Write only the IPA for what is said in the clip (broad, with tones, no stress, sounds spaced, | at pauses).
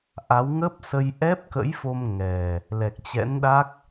ʔ a˨˦ w ŋ ə˦˥ p̚ s ə˧ j ʔ ɛ˦˥ p̚ k ə̰˧˥ j f o˧ m ŋ ɛ˨˩ | l ɛ˨˩ k̚ t͡ɕ ɛ̰˧˥ n ɗ a˦˥ k̚